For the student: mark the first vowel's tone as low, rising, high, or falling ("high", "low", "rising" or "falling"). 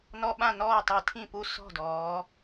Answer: high